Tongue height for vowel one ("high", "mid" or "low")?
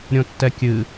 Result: mid